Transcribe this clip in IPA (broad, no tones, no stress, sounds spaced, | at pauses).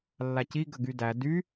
lː a c i ɡ ə ɡ y d æ d y